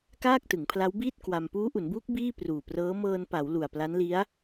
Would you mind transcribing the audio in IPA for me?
k aː˥˩ k̚ t ɯ˩˦ ŋ pʰ l a˦˥ w b iː˥˩ t̚ k w a˧ m p uː˦˥ ʔ u˩˦ n b uː˦˥ k̚ b iː˥˩ p r uː˨˩ p r ɤː˦˥ m ɤː˧ n p a˩˦ w l u˨˩ a̯ p l a˦˥ n l i˦˥ a̯

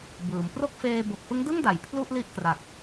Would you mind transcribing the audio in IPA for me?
b ɯː˩˦ m p r o˥˩ k̚ f eː˧ b o˨˩ k̚ f ɯ˦˥ ŋ d ɯ˥˩ ŋ d a˩˦ j pʰ l u˥˩ ʔ l i˥˩ ʔ k r a˨˩ k̚

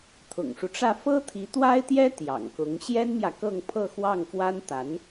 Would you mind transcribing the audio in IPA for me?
t̪ʰ ʊ̰˨˩ ŋ ʂ u˦ ʈ͡ʂ ä˥˩ f ɤ˥ t̪ʰ i˧˥ t̪ w a˥ ɪ̯ t̪ j ɛ˥ t̪ j ɑ̰˨˩ ŋ k ʊ˧˥ ŋ ɕ j ɛ˥ n m j ä˨ k ɤ˥˧ ŋ pʰ ɤ˥˧ x w ɑ˥˩ ŋ f w a˥ n t̪ a˧˥ n

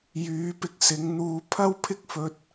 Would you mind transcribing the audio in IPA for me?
j yː˨˧ p ɪ˧ k̚ s ɪ˨˧ ŋ n̪ uː˧ pʰ ɐ˥ w pʰ ɪ˥ k̚ f ɵ˧ t̚

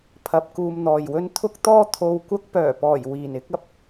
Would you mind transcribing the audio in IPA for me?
pʰ ɐ˧ p̚ k uː˧ m n̪ ɔː˨ j w ɵ˥ n t̪ʰ ʊ˥ k̚ t̪ ɔː˥ t̪ʰ o˧ w kʷ ɐ˥ k̚ p œː˨˩ p ɔː˨˩ j w iː˨˩ n ɪ˨˥ k̚ ɐ˥ p̚

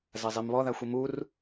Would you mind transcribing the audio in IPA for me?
z ɐ zˤ i m β ɔ ð a xʷ i m u r

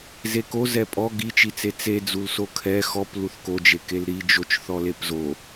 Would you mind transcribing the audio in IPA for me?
z e k o z ɛ pʼ ɔ ɡ i t͡ʃ i t͡s e t͡s e d͡z u l s o kʰ ɛ x ɔ p l u θ k o d͡ʒ e k e l ɾ i d͡ʒ o t͡ʃ θ ɔ l e p z o

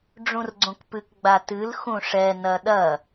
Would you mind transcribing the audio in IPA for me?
ɖ͡ʐ ũ r ɡ͡ǀ õ k p ɨ k ɡ͡b a t ɨ l x ũ ʂ ɛ n ɐ ɗ ɐ

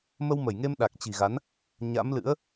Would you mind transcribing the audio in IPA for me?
m ə˧ w m ə˧˩ j ŋ e˧ m ɗ a˨˩ k̚ t͡ɕ i̤˨˩ ɣ a˨˦ n | ɲ a̰˧˥ m l ɨ̰˧˥ ə̯

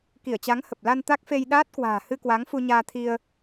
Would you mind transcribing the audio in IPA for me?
k i˧˩ ə̯ t͡ɕ a˨˦ ŋ h ə˨˩ p̚ l a˧ n t̪ a˦˥ k̚ f e˧ j ɗ aː˦˥ t̚ k w a̤ː˨˩ h ɨ˧ k w a˨˦ ŋ f u˧ ɲ aː˧ t̪ʰ i˧ ə̯

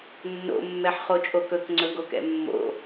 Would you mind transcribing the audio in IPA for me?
nː o̰ mː ɛ ħ χ o t͡ʃʼ o k ɵ k ŋ͡ǀ ɵ ɡ o k ɛ̰ mː o̰

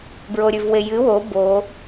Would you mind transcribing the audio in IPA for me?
b ɹ o ɾʲ ʉ v w e j ɨ w o b o

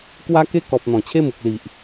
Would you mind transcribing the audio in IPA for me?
k w a˦ k e˦ k ɔ˨ p̚ n̪ ɔ̃˨˩ t͡ɕʰ e˦ m u˨ k̚ l i˨ ʔ

